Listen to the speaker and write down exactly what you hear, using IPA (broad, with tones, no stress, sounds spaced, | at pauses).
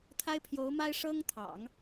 t̪ʰ a˥ ɪ̯ pʰ j o˧˥ ʊ̯ m a˥ ɪ̯ ʂ ɤ˥ ŋ t̪ʰ ɑ̰˨˩˦ ŋ